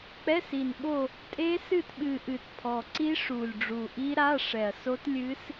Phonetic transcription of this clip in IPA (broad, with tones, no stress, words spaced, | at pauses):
k͡pɛ˧˥˧si˨˩nɓo˦˨ | tʼe˦˥ sɨ˦˨tɓɨ˨˩ ʔɨ˨˩tpʰɔ˨˩ǀi˦˥ ʂu˨˩lʲ ɖ͡ʐu˨˩ʔi˦˥ɾa˧˥˧ ʂɛ˨˩ɐ̯so˦˥t lʲɨ˦˥s